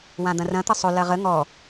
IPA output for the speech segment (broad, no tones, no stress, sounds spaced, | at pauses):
w ã d̪ ɐ̃ r ɐ̃ t̪ ɐ sˤ ɵ l ɐ ʁ ə ŋ ɔ